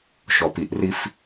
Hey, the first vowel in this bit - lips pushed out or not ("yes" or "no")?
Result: yes